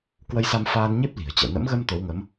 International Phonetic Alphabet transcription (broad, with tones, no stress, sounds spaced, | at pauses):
k w ə˧ j s a˧ m f aː˧ n ɲ e˦˥ p̚ l i̤˨˩ ə̯ t͡ɕ ɛ̰˧˨ n ə̰˧˥ m ɣ ə˧ m t̪ o˨˦ w ŋ ə˨˦ m